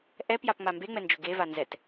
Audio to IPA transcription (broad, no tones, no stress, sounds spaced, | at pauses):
ʔ ɛ p j a p ŋ͡m a m b e ŋ͡m ɛ n d͡ʒ ʊ ɡ e v a n z ɛ t